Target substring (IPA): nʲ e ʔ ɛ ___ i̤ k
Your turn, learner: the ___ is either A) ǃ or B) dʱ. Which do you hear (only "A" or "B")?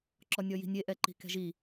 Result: A